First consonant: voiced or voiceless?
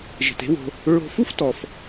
voiced